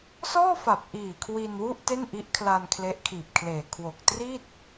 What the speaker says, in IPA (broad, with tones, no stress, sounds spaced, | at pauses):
s ɔː˥˩ f a˨˩ p̚ ʔ iː˨˩ kʰ w i˧ n w u˥˩ ʔ t e˥˩ n ʔ i˦˥ ʔ kʰ l a˧ n kʰ l e˦˥ ʔ kʰ iː˨˩ p̚ kʰ l eː˨˩ kʰ w o˨˩ k̚ t r i˥˩ t̚